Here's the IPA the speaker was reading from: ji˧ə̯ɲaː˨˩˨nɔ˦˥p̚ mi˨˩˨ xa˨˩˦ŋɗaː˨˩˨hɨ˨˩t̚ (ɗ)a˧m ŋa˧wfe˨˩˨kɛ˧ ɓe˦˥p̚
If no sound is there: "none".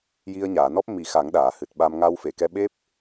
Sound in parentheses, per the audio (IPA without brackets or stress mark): ɓ